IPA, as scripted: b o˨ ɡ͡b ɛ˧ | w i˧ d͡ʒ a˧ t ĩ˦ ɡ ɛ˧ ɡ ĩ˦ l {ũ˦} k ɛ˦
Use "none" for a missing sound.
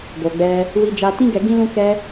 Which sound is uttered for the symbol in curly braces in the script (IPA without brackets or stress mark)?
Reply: ũ˦